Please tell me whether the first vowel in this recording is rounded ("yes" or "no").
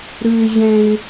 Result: no